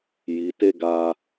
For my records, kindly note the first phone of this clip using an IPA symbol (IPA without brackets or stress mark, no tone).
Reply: j